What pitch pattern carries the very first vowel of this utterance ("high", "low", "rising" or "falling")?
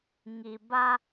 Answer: low